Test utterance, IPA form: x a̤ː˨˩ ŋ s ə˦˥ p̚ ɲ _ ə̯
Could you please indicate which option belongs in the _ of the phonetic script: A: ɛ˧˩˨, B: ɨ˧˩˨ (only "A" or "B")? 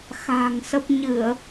B